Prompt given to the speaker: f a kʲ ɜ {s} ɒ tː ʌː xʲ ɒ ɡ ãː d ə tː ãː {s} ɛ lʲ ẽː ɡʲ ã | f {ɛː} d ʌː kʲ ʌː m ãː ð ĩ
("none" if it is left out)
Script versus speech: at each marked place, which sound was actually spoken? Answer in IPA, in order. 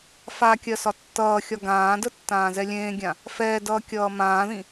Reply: s, z, ɛː

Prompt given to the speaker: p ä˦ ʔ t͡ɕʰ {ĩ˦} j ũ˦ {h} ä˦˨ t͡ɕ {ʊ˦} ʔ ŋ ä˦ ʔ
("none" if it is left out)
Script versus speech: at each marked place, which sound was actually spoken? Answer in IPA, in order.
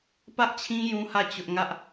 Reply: ĩ˦, h, ʊ˦

